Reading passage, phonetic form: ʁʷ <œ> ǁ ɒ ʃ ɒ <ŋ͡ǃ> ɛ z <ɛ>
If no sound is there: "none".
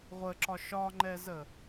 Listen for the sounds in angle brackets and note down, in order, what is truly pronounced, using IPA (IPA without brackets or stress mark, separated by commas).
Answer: ə, ŋ͡ǃ, ə